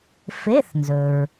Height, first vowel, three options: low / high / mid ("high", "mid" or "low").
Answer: mid